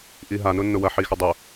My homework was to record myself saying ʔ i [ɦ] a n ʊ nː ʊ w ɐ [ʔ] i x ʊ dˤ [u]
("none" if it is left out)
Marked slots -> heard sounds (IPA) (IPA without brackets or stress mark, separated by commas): ɦ, ħ, ʊ